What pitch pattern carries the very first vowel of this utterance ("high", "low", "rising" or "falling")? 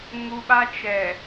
high